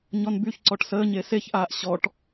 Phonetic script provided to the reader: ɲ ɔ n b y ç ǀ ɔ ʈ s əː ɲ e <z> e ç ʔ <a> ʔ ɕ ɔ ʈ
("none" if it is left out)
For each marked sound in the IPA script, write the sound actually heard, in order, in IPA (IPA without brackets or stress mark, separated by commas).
s, aː